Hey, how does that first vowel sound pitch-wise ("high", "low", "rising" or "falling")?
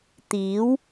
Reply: rising